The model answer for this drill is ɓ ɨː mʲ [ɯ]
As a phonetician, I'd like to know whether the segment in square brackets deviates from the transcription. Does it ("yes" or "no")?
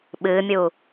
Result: yes